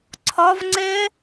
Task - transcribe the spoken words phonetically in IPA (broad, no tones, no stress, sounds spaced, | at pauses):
ǀʰ ɒ v ŋ͡ǀ e